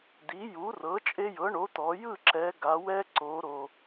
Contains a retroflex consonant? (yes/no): yes